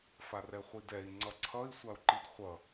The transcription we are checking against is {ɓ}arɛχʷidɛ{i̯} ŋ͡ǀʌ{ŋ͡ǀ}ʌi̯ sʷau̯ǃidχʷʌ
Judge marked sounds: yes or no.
no, yes, no

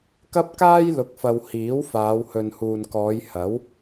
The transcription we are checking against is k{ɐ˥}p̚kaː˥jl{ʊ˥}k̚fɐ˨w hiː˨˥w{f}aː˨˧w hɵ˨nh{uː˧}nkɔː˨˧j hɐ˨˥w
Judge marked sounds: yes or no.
yes, no, yes, no

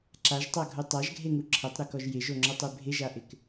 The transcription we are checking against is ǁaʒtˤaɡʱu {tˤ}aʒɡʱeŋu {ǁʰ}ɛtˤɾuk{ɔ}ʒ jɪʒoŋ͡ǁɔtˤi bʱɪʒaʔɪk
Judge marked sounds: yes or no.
yes, yes, yes

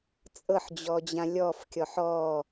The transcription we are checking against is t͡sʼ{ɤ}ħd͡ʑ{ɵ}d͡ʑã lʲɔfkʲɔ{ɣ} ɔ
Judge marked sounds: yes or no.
yes, no, no

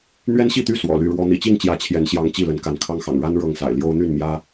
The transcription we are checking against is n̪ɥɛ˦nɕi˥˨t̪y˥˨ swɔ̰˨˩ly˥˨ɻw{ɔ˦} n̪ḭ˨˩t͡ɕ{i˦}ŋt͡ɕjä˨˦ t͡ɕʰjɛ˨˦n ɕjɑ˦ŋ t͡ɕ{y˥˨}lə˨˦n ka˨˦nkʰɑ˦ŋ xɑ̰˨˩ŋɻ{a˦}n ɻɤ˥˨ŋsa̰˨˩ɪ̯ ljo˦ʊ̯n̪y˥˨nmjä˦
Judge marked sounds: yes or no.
yes, no, no, yes

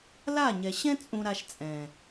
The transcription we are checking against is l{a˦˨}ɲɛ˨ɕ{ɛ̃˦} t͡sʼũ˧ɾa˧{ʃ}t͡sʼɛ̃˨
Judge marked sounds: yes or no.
yes, yes, yes

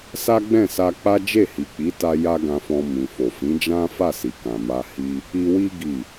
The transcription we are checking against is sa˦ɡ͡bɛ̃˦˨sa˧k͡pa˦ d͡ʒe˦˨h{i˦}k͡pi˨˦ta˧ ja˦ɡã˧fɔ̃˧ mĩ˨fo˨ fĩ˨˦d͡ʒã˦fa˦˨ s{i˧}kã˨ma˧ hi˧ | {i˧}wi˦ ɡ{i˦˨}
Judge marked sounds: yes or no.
no, no, yes, yes

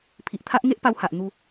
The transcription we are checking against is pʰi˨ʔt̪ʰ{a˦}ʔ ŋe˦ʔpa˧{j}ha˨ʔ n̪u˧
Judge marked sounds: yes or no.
yes, no

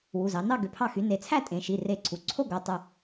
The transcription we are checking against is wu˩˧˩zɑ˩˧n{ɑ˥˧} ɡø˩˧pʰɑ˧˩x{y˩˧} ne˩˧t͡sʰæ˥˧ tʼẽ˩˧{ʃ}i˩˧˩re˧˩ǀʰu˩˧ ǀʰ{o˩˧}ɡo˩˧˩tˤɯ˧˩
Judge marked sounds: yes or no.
yes, yes, yes, no

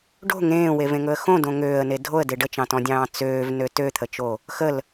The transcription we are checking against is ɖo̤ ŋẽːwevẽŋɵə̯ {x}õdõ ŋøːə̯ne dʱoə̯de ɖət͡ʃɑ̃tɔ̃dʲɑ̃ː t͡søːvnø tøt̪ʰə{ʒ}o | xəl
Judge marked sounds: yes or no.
yes, no

